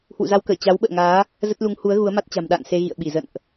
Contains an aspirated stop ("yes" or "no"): no